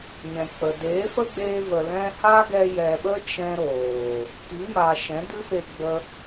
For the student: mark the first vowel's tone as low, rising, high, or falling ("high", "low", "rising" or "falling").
low